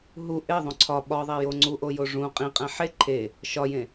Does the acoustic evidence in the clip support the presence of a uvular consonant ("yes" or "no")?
yes